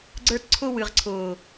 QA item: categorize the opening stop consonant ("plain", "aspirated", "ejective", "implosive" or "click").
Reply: click